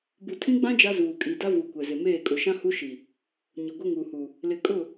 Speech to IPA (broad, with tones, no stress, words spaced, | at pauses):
bu˨ tʰĩ˦ɡ͡bã˦ d͡ʒa˦zuː˨ kʼi˨da˦vu˨ kʷɛ˨zɪ˨meː˦˨ kʼʊ˨ʃã˦hu˦ʃi˨ | ɲʊ˨ɡʷɪ˦ŋu˨hu˨ | lɪ˨kʼʊ˦˨